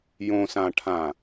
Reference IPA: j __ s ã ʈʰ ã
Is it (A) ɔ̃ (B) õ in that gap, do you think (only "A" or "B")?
B